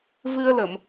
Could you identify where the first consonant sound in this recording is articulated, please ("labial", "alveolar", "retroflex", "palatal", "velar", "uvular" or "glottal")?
labial